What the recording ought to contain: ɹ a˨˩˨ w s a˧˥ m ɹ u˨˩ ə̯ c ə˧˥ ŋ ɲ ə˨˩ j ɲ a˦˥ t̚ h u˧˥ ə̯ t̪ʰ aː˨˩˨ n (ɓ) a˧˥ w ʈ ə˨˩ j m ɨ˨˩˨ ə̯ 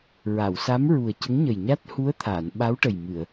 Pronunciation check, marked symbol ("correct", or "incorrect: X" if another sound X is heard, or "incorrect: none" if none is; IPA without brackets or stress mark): correct